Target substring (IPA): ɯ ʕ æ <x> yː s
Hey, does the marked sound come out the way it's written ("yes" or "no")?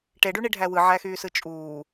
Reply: yes